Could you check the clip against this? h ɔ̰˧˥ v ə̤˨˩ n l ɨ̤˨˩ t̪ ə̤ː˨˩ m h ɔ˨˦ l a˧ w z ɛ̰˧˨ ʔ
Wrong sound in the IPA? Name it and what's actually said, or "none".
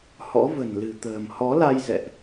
w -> j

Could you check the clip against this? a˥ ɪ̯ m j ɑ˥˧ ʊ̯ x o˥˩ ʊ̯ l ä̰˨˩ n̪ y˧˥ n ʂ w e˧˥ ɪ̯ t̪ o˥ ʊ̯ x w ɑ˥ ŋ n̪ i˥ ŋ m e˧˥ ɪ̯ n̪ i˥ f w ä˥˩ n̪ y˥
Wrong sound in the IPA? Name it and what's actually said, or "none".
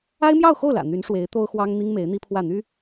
f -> pʰ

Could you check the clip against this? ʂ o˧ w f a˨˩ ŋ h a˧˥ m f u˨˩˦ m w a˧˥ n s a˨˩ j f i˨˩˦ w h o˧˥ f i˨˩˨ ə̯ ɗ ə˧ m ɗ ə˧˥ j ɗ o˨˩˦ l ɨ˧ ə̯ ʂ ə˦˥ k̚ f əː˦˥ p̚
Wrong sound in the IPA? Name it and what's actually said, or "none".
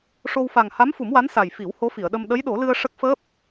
none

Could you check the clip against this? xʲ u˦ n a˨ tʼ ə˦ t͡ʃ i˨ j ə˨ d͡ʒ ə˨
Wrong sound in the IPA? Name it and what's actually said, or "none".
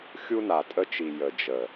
none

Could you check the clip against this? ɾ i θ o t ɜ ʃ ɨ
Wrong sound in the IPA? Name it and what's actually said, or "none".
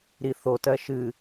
none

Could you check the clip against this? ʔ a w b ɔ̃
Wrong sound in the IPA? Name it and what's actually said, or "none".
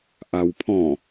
b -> pʰ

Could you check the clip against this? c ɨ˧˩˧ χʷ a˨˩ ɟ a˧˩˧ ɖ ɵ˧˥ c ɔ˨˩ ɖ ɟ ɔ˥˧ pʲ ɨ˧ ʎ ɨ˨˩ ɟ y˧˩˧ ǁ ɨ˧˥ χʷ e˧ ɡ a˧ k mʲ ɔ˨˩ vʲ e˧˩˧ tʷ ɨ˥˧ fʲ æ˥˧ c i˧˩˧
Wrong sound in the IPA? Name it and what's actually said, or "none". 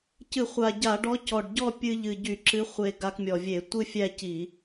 ɵ˧˥ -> ɔ˧˥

